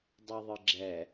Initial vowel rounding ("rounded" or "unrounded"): unrounded